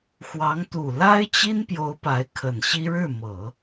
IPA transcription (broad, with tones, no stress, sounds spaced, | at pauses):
x w ɑ˧˥ ŋ t̪ u˨˩ l a˥ ɪ̯ t͡ɕ i˥ n p j o˧˥ ʊ̯ p a˧˥ ɪ̯ kʰ ə˨˩ n ɕ i˥ ɻ ɻ̩˥˩ m ɤ˨˩˦